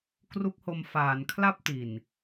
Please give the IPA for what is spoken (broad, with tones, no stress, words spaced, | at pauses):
kru˦˥k̚ho˧m faː˩˦nkʰla˥˩p̚ti˨˩n